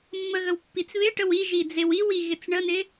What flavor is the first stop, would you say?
plain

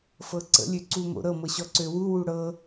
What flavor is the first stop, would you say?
click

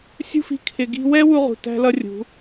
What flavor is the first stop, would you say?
aspirated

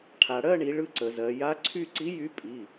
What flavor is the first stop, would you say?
aspirated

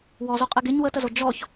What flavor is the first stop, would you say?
ejective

